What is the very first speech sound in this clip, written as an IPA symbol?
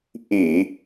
ʔ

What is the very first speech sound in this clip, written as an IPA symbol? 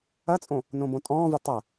ɐ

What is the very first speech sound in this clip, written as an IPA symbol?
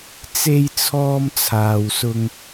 t͡s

